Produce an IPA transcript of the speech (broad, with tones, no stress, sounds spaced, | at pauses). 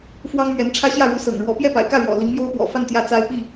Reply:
f w ɑ˥ ŋ m ɥ ɛ˧˥ n ʈ͡ʂʰ ä˥ ɕ j ä˥˩ ɻ u˧˥ s ɤ̰˨˩ ŋ ɻ w ɔ˧˥ p j ɛ˥˩ p a̰˨˩ ɪ̯ k ä˥˩ ɻ w ɔ̰˨˩ l i˧˥ ŋ m j o˥ ʊ̯ p w ɔ̰˨˩ f a˥˧ n t̪ j ä˥˩ t͡s a˥ ɪ̯ p i˥˩